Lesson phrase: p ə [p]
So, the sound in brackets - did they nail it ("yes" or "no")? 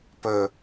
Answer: no